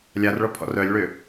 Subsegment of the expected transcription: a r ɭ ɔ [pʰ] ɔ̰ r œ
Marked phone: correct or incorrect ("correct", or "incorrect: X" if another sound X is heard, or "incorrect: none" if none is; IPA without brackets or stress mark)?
correct